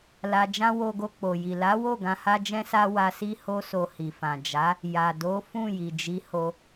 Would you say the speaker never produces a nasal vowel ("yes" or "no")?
no